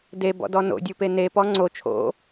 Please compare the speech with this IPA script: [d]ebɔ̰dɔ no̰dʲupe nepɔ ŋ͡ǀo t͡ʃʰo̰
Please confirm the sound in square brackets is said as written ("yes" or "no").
yes